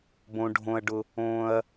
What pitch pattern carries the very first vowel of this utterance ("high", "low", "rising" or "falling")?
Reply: low